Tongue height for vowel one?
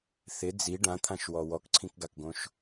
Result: high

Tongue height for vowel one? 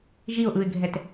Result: high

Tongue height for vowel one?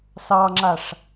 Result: low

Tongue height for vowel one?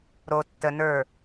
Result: mid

